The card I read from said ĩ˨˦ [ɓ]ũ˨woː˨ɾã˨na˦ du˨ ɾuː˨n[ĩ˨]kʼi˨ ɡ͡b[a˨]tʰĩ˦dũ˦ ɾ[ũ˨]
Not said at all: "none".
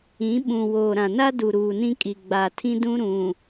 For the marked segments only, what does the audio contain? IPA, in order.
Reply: ɓ, ĩ˦, a˨, ũ˨

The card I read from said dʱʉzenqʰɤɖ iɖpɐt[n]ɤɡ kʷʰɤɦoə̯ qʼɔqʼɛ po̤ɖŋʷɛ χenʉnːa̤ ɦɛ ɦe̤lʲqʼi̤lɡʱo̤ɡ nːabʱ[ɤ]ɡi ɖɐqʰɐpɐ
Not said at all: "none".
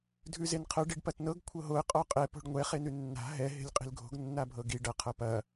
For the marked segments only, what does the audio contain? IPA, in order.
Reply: n, ɤ

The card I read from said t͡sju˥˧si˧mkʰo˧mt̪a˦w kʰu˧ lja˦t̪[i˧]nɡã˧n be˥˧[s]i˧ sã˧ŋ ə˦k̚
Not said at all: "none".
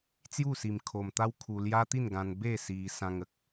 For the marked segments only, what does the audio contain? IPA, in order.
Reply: i˥˧, s

